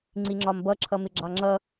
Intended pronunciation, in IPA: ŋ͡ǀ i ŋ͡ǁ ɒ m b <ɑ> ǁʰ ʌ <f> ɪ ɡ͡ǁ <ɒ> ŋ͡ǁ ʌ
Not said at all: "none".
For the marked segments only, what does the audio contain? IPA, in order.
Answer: ʌ, m, ɑ

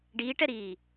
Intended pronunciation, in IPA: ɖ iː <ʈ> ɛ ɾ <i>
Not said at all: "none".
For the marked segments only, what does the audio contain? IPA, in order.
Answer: ʈ, iː

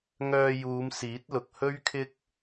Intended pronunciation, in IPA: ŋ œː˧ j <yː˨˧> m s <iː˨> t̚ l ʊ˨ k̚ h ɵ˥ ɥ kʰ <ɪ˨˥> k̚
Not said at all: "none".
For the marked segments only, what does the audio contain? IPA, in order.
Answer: uː˨˧, iː˨˥, ɪ˥

